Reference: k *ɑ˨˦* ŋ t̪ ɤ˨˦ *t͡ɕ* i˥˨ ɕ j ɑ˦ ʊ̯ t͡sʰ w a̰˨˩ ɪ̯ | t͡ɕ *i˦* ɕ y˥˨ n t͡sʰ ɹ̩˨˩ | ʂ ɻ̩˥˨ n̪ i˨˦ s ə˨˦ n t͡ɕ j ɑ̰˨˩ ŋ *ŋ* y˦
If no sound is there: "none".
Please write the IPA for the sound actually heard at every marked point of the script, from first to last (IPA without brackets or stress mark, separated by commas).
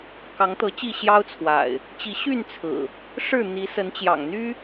ɑ˨˦, t͡ɕ, i˨˦, n̪